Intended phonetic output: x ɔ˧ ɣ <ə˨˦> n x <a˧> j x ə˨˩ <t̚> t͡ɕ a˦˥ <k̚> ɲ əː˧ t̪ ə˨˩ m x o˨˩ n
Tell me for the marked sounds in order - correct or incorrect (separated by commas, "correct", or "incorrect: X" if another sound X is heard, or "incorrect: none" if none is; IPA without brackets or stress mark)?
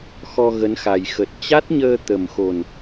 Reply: correct, incorrect: a˨˩, correct, incorrect: t̚